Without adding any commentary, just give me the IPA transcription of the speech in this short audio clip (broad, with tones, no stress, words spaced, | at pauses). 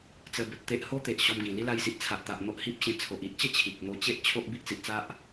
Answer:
t͡sə˧bə˨t̚t̪e˦ʔ ho˦ t̪e˨ʔɕɔ˧mɡĩ˨˩ li˦la˧jsi˨ʔ t͡sʰa˨ʔt̪a˨ʔ n̪o˦ʔhi˦p̚ɕẽ˧ t͡sʰo˨ʔi˦ʔt͡ɕə˥˧ t͡ɕʰi˨k̚n̪o˧t͡ɕe˦ʔ t͡ɕʰo˦ʔbi˦ʔ t͡si˨ʔt͡sa˦ʔ